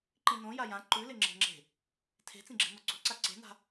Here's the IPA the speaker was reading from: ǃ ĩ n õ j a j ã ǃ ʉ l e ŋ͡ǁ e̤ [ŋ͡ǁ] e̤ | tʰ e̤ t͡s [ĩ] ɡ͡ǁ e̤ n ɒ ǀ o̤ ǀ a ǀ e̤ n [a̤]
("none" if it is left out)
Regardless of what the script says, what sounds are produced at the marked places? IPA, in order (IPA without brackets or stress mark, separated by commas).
ŋ͡ǁ, ĩ, a̤